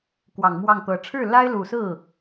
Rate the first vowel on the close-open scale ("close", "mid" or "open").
open